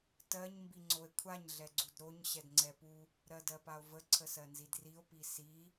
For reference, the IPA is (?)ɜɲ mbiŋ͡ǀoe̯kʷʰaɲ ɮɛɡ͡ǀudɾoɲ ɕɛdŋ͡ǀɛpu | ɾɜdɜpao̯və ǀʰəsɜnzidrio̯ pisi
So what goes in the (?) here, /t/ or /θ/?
t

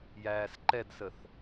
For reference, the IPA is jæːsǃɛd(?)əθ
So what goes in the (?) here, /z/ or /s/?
s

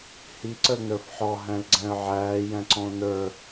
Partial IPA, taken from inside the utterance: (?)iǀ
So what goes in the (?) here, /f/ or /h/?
h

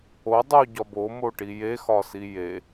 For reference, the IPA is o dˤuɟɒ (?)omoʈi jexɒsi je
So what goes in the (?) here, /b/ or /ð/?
b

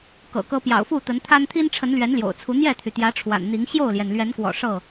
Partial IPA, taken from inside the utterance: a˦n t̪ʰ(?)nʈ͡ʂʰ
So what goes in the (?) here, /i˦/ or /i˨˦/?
i˦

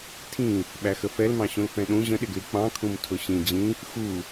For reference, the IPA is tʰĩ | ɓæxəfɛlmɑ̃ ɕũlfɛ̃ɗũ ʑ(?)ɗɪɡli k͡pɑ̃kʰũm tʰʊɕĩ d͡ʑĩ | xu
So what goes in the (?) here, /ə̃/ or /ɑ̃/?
ə̃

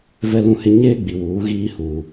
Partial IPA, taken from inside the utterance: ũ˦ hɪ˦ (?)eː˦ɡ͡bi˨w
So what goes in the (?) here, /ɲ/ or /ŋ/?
ɲ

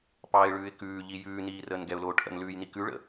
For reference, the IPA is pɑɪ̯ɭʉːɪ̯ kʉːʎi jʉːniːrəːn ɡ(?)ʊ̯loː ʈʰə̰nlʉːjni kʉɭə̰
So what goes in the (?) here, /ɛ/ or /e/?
ɛ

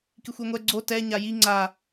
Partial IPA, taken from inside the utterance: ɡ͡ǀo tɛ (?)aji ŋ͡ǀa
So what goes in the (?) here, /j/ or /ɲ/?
ɲ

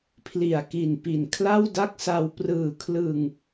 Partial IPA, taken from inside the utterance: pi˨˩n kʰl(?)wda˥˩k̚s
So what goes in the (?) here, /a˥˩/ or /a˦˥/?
a˥˩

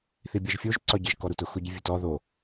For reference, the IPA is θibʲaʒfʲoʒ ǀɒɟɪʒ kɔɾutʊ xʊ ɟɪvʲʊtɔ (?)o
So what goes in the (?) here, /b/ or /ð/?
ð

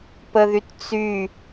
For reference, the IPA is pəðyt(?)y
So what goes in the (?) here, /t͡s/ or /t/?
t͡s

